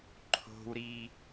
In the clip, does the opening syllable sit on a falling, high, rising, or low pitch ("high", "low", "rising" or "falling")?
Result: high